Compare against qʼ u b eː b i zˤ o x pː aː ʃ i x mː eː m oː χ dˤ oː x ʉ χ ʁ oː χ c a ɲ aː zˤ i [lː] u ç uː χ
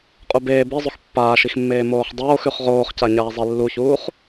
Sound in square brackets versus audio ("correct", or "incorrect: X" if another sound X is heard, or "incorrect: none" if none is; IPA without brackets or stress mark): correct